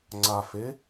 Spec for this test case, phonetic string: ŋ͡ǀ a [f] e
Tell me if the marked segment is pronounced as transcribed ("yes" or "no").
yes